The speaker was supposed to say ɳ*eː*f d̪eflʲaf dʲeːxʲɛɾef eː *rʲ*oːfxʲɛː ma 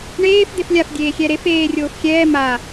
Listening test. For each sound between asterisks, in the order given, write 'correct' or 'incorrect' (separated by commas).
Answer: correct, correct